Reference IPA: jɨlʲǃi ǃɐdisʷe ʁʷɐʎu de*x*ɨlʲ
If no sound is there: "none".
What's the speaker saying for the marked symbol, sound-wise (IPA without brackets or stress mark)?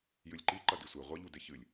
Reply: ç